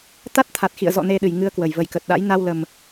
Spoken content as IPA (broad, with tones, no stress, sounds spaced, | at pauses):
t̪ a˦˥ t̚ t̪ʰ a˨˩ t̚ x ḭ˧˨ ə̯ z ɔ̰˧˨ n e˧ ɗ ɨ˨˩ j ŋ ɨ˧ ə̯ k w ə˨˩ j v ə˧˩ j k ə˨˩ t̚ ɗ a̰˧˥ j n a˧ w l ə˨˩ m